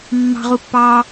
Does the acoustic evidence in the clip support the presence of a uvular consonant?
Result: yes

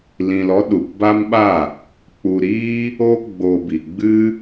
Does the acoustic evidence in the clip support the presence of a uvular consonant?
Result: no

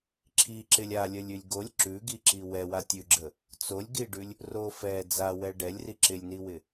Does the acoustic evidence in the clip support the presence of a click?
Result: yes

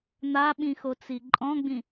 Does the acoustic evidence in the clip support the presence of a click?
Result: yes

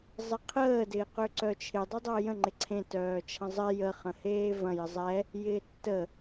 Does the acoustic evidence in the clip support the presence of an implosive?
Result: no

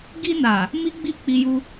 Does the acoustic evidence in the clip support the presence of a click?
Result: no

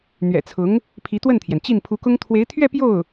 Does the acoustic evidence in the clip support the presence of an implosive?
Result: no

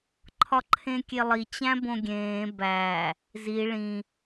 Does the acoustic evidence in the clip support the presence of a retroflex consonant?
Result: yes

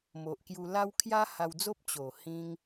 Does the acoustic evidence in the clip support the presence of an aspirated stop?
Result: yes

